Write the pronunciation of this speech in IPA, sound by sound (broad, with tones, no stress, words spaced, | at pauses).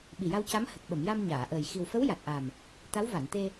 ɓi˨˩ja˧wca˧˥m hə˨˩k̚ɓə˨˩˨m ja˧mɲaː˨˩˨ʔəː˨˩j xi˨˩wfə˧˥w ja˨˩t̚ʔa˨˩m | t̪a˧˥wva˨˩˨nt̪e˧